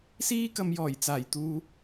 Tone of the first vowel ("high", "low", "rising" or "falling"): high